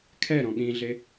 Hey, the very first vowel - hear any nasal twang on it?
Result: no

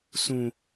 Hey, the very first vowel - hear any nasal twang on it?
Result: yes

